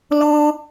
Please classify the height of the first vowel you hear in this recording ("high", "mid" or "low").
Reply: mid